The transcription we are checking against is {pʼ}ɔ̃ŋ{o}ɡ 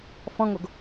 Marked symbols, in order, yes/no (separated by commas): no, yes